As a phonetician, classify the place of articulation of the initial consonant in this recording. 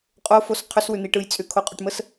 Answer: uvular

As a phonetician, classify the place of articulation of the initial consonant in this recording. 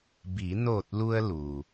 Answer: labial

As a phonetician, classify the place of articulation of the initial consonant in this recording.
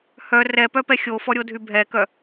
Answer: glottal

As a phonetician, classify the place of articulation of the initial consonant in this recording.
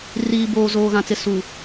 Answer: alveolar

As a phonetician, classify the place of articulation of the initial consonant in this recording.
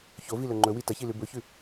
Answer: palatal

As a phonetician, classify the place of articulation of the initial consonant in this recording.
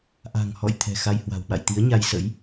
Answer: glottal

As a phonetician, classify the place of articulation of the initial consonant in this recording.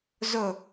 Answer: alveolar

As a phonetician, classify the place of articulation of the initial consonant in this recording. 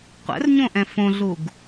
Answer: uvular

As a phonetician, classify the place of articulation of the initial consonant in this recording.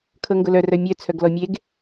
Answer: velar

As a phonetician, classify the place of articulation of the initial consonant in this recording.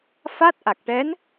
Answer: labial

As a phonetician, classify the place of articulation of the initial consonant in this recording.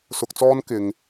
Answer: alveolar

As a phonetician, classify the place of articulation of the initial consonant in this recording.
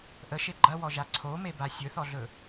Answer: glottal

